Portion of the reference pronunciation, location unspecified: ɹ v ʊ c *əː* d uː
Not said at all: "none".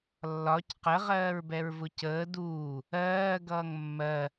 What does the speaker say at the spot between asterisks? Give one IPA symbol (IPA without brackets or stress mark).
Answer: əː